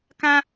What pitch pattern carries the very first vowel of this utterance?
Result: high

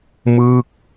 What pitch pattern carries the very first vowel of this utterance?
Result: falling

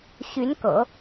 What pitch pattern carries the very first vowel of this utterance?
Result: rising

